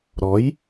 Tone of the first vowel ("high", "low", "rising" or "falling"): rising